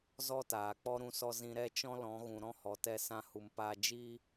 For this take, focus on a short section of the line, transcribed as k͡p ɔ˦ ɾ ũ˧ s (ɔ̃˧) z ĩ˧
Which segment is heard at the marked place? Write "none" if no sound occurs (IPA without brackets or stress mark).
ɔ˧